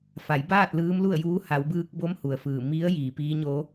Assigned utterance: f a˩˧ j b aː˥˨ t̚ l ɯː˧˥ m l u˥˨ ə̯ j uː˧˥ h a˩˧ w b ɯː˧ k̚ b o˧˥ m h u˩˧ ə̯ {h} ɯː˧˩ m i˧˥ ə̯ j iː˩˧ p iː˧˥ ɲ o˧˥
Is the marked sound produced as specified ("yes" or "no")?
no